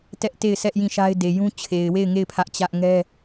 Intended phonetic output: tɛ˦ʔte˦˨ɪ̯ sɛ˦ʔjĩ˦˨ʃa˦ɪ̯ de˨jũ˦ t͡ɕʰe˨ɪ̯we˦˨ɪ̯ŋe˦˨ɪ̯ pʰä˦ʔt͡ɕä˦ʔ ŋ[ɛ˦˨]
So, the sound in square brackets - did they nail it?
no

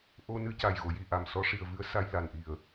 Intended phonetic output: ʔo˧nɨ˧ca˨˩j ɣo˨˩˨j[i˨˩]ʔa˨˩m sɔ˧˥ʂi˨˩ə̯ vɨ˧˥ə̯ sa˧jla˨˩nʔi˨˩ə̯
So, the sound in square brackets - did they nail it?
yes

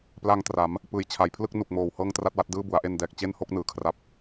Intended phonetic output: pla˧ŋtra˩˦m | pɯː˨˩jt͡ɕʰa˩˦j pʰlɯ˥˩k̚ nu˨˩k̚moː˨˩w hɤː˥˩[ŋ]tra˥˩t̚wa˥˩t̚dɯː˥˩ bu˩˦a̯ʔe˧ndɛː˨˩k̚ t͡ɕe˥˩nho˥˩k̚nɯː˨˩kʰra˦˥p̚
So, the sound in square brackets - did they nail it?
yes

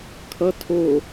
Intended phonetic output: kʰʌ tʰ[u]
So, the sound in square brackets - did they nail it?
no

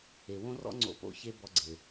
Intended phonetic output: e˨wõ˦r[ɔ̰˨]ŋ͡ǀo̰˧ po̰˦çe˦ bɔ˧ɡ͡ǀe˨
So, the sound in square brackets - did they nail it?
no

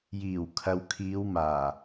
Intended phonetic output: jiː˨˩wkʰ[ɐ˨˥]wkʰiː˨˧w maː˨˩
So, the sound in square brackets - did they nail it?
no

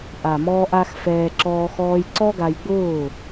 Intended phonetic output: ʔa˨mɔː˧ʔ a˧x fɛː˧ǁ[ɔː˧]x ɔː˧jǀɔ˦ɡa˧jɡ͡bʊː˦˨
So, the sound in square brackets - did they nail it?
yes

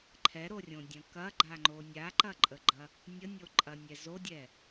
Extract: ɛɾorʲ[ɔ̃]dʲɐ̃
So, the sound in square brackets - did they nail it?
no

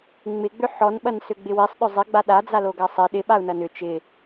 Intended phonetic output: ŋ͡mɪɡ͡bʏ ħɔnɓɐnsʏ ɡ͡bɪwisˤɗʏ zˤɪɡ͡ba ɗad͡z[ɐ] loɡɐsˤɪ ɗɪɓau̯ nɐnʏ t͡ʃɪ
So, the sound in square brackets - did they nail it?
no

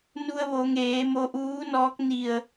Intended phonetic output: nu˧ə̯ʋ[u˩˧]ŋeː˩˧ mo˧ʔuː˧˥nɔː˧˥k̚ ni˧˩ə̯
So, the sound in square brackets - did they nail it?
no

